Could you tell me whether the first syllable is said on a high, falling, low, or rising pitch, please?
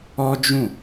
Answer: high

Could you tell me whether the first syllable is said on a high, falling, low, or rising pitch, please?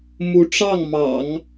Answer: rising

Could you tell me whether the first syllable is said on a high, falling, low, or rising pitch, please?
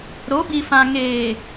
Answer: rising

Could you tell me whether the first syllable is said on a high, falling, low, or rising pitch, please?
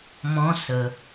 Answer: rising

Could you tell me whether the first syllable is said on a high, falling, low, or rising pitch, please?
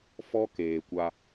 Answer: high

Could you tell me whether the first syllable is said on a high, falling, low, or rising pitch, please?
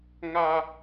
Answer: high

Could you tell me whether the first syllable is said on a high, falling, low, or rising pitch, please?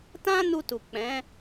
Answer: high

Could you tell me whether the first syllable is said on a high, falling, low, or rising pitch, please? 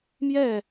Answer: falling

